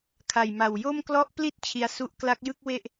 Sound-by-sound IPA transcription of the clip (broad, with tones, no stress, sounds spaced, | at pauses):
kʰ a˨˩ j m a˨˩ w j o˥˩ m k l ɔ˦˥ ʔ p l i˥˩ t̚ t͡ɕʰ i˧ a̯ s u˥˩ ʔ k l a˦˥ k̚ j ɯ˥˩ k̚ w e˥˩ ʔ